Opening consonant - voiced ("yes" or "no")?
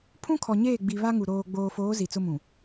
no